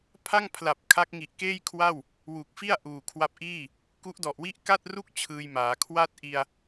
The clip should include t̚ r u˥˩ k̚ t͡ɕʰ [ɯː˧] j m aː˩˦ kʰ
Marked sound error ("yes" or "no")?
no